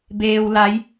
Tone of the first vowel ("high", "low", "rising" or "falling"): low